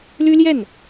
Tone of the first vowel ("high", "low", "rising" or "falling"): high